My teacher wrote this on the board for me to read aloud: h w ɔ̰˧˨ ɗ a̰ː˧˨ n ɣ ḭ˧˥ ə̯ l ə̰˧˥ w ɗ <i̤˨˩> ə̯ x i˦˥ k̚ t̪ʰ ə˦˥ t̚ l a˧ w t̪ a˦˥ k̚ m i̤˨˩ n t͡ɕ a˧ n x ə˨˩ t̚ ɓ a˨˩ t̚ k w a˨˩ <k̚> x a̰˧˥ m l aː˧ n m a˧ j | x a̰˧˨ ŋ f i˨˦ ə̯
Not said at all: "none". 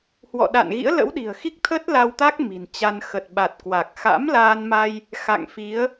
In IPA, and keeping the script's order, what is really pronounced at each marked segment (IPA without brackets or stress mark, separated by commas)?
i̤˨˩, k̚